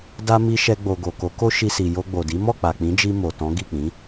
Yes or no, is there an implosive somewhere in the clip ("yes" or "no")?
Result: no